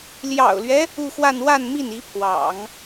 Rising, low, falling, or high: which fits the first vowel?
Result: low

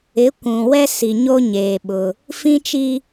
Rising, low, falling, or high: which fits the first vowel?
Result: rising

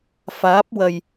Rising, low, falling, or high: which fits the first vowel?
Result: rising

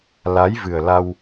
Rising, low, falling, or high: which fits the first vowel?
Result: rising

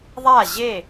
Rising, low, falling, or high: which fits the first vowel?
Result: falling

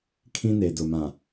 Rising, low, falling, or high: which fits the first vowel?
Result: high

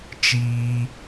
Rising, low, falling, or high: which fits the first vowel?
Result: high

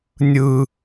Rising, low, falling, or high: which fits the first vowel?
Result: low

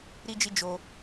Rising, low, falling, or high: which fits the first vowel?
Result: high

